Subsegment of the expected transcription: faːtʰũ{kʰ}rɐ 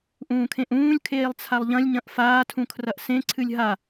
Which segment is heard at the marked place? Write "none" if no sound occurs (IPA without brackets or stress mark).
kʰ